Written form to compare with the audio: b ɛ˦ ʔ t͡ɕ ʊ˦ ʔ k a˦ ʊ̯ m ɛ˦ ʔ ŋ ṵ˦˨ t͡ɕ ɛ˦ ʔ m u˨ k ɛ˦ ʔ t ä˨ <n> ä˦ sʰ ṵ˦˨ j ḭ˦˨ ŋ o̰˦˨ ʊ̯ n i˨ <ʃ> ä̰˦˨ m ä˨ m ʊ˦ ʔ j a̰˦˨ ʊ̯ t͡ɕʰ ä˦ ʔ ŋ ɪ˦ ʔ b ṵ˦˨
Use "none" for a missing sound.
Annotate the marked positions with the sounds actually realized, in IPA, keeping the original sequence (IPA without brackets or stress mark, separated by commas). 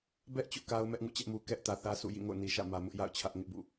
θ, ʃ